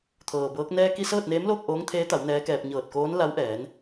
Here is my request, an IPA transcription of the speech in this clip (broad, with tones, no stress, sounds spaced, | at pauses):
t̪ʰ ɤː˩ b ɤː˧˥ k̚ n ɛː˧ k i˧ s ɤː˥˨ t̚ n eː˧˥ m l oː˥˨ k̚ ʔ oː˧˥ ŋ t̪ʰ eː˧˥ t̪ a˩˧ w n ɛː˧˥ k ɛː˧ p̚ ɲ ɤː˧˩ t̚ k oː˧˥ n l a˧˥ w ʔ ɛː˩˧ n